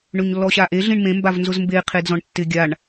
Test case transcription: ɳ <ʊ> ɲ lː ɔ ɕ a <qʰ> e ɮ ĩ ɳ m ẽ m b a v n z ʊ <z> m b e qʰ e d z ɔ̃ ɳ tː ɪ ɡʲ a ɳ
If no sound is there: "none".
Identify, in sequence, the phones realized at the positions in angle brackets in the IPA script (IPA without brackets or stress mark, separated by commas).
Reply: ɵ, ʔ, z